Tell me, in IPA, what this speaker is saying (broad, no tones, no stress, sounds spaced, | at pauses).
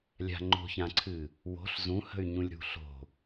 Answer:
lʲ a̤ ŋ͡ǃ o̤ ç ã ǀʰ ɨ | w o̤ ɬ z ũ h ə̤ y̯ ɲ ũ lʲ ɾ ṳ ɬ o̤